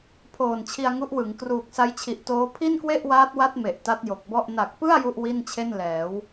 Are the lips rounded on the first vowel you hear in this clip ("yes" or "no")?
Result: yes